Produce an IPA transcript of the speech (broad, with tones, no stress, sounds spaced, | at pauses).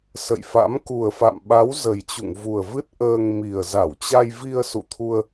s ə̰˧˨ j f a̰˧˥ m k u˨˩ ə̯ f a̰˧˨ m ɓ a˨˦ w z ə˨˩ j t͡ɕ ṵ˧˨ ŋ v u˨˩ ə̯ v ɨ˦˥ t̚ ʔ əː˧ ŋ m i˨˩ ə̯ z a˧˩ w t͡ɕ a˧ j v i˧ ə̯ s ṵ˧˨ t̪ʰ u˧ ə̯